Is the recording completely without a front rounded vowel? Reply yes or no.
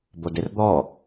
yes